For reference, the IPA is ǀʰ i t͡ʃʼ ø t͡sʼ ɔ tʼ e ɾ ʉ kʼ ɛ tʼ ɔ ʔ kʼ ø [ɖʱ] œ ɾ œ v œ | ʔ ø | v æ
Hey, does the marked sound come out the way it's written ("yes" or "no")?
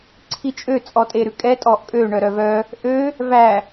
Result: no